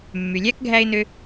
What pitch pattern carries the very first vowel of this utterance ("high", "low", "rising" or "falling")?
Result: low